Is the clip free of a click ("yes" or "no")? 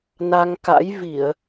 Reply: yes